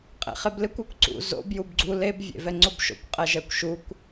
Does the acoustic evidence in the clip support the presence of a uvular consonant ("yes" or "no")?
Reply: yes